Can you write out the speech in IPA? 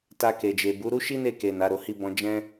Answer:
ta˧ke˨d͡ʒe˨ bu˨˦ɾu˦ ʃi˦ne˦˨ke˨ na˨˦ɾo˧hi˦bɔ̃˦ d͡ʒɛ̃˦

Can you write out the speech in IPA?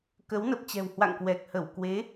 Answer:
kə˨˦wnə˨˩p̚t͡ɕɛ̤˨˩whwa̰˧˨ŋ kwɛ˨˩k̚hə˧˩w kwe˨˦

